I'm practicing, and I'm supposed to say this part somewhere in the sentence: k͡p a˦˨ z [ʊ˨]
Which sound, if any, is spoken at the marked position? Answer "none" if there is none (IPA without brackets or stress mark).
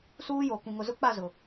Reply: ʊ˨